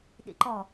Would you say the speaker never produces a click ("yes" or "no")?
no